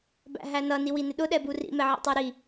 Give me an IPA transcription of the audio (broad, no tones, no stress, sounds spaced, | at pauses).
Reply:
b æ̰ ɦ æ n ʌ n i w i n ɪ ɗ ʊ ɗ ɛ b u r ḭ m ɛ ʕ ḭ tˤ ə˞ ɾ i